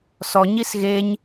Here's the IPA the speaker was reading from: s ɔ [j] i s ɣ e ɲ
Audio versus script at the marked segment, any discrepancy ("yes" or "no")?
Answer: yes